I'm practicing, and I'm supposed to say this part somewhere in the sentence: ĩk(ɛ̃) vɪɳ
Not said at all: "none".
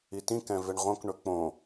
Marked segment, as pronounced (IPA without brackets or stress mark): ɛ̃